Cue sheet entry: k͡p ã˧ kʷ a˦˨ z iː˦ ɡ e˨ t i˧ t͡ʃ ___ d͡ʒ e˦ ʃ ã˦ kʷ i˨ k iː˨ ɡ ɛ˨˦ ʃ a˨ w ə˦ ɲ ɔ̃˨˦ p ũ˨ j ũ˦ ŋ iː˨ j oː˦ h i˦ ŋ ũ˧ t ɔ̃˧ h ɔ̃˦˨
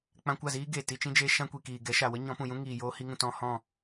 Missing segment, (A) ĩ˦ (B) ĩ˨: A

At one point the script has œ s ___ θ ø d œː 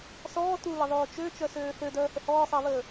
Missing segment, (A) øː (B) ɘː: A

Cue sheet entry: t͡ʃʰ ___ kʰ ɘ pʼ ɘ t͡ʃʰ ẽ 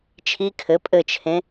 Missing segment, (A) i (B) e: A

